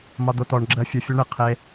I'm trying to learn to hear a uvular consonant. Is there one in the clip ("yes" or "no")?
yes